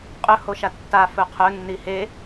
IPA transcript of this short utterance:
qʼ ɵ h o ʃ a tː a f ɵ qʰ ɵ nː i h e

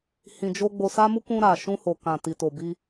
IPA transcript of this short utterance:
h ĩ˧ d͡ʒ o˦ ɡ͡b o˧ s a˦ m u˦ k ũ˧ ɾ a˨ ʃ ũ˧ h o˨ k ã˨ t i˨ t o˨ b i˧

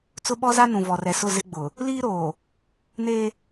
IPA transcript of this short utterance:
t͡s ʊ˦ ɓ ɔ˦ z a˦ n ũ˨ v ɔ˨ r ɛ˨ s ʊ˦˨ z ɪ˦ ɡ͡b ʊ˨ | l iː˦ ɾ oː˨ | n eː˦

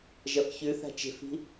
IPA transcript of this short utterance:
ʒ ɐ f ç ʉ θ a̤ t͡ʃ e̤ f i̤

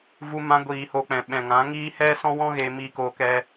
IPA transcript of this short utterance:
v u˧ m ã˧ ɡʷ iː˨ h o˧ k͡p ɛ̃˨ ɓ ɛ̃˨ ŋ ã˨˦ ŋ iː˦ h ɛ˦ s ɔ̃˦ w ɔ̃˦ ɣ eː˧ m iː˧ k oː˧ k ɛ˦

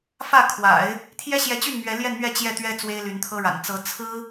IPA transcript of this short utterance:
f ä˥˩ kʰ w a̰˨˩˦ ɪ̯ | t̪ʰ j ɛ˥ ɕ j ɛ˧˥ t͡ɕ y˥˩ n m ɥ ɛ˧˥ l j ɛ˥˧ n m ɥ ɛ˥˧ t͡ɕ j ɛ˥˩ t̪ ɥ ɛ˥ t͡s w e˥ ɪ̯ l y˧˥ n t̪ʰ ɤ˥ ɻ a̰˨˩ n t͡s ɤ˧˥ t͡sʰ ɹ̩˥

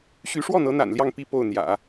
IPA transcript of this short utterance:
ɕ y˧˥ ʂ w ɔ˥˩ n̪ ɤ˧˥ n̪ a̰˨˩ n l j ɑ˥˧ ŋ p i˥˧ p o˥˩ ʊ̯ n̪ j ä̰˨˩˦

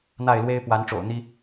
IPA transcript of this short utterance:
n̪ a˥˨ ɪ̯ l w e˦ ɪ̯ p w a˨˦ n ʈ͡ʂ o̰˨˩ ʊ̯ n̪ i˦

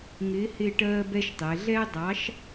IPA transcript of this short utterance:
ŋ ɪː˨˥ h ɪː˦˨ ʈ ɜː˦ b ɛ˦ ʃ tˤ ɛ˩˧ ɮ ɛ˦ dˤ ɑ˨˥ ʃ

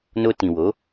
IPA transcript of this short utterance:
n o˧ t ĩ˨ w o˨˦

